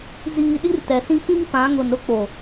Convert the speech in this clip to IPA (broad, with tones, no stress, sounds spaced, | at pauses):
z iː˨ ɗ i˦ r t ɛ˨ s ĩ˦ k ĩ˦ ŋ p ã˨˦ ŋ ʊ˨ n ɾ ʊ˦ k͡p o˨